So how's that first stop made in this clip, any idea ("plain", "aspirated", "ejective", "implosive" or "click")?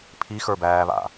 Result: aspirated